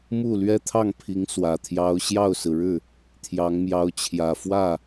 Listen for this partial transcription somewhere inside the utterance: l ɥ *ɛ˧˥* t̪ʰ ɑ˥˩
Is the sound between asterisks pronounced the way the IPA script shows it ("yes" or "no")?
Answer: no